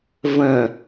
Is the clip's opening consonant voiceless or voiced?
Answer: voiced